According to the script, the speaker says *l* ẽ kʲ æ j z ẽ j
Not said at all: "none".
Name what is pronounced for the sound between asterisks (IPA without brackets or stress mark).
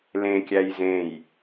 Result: l